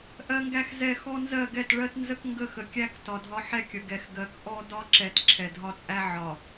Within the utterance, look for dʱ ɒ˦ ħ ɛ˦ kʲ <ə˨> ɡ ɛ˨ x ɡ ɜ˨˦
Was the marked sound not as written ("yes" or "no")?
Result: no